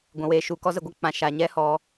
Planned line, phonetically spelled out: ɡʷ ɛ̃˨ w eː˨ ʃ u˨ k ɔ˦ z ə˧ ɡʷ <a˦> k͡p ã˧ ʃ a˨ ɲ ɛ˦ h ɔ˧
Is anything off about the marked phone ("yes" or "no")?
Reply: no